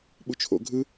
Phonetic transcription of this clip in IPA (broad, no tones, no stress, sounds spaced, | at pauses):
ɓ u t͡ʃʰ o̰ ɡʱ ɯ